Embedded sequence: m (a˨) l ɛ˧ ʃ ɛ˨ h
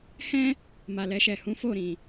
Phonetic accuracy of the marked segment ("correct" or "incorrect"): correct